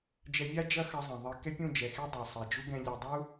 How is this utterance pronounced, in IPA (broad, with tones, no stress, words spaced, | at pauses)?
d͡ʒɛ˧vʲa˦d͡ʒɐ˦ xɐ˧zˤɐ̃˨ðˤɘ˧ kɛ˦pʲũ˦˨d͡ʒɛ˨xe˦ dˤɐ˨sˤɛ˨ d͡ʒu˦ɡɛ̃˧ lʲe˨dˤu˦